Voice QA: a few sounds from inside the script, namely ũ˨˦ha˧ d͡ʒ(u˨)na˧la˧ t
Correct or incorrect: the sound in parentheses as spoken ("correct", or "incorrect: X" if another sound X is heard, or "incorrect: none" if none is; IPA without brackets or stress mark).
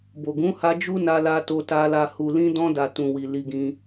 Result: incorrect: u˦